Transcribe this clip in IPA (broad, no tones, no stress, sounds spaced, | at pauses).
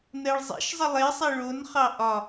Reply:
n ɜ ɭ zˤ ḛ ʃ zˤ ə lˠ e sˤ e ɭ o n χ ɑ ʔ ɒ